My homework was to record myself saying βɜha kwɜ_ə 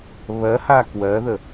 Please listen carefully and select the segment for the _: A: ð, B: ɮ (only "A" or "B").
A